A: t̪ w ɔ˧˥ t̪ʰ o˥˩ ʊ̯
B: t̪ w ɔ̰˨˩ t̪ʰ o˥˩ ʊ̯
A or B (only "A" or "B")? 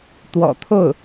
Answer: B